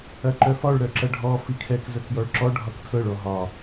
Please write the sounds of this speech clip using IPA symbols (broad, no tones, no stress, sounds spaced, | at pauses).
ɐ ǃ œ f ɒ ɭ ɾ œ ǁ ɐ ɖʱ ɔ f i kʰ ɛ k z œ k j ɔ ɭ ǁ ɔ ɖʱ ɒ k tʰ ɤ ɭ ɔ ɦ ɒ